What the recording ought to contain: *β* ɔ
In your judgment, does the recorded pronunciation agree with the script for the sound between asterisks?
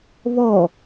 yes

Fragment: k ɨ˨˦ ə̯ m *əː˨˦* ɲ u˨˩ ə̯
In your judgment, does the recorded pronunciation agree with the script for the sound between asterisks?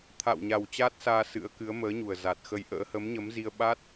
yes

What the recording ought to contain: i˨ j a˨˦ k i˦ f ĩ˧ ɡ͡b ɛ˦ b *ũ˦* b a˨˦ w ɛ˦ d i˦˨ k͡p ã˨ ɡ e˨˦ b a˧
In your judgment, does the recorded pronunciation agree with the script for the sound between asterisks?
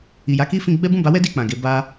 no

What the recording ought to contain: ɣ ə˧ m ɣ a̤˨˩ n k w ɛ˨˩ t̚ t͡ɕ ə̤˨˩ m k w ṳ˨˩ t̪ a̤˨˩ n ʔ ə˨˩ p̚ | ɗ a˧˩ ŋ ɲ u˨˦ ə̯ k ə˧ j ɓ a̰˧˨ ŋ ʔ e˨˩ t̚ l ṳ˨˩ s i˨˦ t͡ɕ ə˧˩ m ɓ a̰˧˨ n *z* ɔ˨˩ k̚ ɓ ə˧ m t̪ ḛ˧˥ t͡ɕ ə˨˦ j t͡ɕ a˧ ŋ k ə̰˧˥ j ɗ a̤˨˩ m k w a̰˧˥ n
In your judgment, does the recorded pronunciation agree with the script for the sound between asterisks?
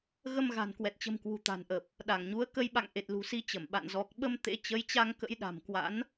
yes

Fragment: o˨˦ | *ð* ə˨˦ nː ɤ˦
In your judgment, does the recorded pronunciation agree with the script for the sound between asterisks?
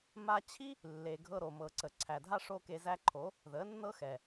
yes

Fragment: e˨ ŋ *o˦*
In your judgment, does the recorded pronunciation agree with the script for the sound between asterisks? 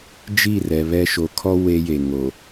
no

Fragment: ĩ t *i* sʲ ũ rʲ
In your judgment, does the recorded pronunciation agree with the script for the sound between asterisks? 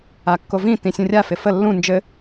no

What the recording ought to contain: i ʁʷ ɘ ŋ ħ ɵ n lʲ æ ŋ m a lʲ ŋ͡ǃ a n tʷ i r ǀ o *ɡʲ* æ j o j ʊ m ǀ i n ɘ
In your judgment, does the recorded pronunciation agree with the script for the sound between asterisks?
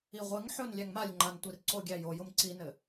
yes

